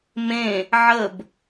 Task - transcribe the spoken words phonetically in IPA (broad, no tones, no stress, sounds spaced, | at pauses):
m ẽ | ʕ ə b